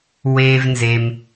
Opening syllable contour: low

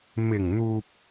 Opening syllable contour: low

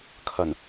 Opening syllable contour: low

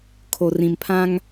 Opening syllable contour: low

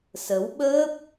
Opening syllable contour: rising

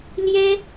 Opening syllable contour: high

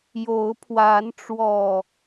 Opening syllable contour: rising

